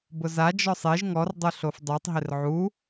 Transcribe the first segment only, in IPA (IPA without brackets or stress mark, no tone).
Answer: b